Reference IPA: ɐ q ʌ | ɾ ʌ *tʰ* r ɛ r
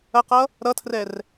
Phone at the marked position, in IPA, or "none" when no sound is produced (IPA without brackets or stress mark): tʰ